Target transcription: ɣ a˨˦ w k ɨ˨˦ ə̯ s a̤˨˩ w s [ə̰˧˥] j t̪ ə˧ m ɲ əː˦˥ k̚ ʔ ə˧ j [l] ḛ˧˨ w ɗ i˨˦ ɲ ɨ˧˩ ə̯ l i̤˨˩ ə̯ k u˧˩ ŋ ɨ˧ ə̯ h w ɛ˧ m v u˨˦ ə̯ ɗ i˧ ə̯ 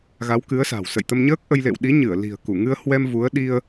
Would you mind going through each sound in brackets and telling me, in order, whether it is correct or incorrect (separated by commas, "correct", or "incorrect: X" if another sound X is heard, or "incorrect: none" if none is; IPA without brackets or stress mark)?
incorrect: ə̰˧˨, correct